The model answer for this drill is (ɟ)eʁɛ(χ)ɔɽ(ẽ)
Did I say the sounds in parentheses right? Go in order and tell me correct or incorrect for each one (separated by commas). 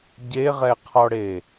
correct, incorrect, incorrect